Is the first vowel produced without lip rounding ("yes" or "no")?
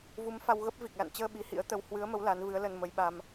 no